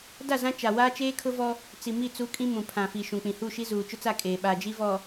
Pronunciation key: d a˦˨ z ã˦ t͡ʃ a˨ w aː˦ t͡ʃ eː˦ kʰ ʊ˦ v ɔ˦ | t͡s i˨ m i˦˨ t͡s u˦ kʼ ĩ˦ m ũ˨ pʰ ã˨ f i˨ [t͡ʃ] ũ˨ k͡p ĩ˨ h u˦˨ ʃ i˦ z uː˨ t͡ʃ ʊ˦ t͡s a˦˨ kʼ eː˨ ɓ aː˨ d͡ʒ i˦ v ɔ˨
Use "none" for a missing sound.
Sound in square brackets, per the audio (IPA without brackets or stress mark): ʃ